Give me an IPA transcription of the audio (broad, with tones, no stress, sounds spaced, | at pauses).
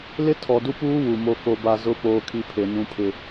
l ɪ˦ tʰ ɔ˨ d u˦ p uː˦ w u˨ m o˦ k o˦ b a˦ z ʊ˦ p oː˦ kʰ i˦ pʰ e˨ n ũ˦ pʰ ɪ˦